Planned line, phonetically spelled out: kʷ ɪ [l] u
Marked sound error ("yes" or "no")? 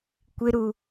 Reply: yes